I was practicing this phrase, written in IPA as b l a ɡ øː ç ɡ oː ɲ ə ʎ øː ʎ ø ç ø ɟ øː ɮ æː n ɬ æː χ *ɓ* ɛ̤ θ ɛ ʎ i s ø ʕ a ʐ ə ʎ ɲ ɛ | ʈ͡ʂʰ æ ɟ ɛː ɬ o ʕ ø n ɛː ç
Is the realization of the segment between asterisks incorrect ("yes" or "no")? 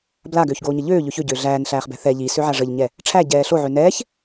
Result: yes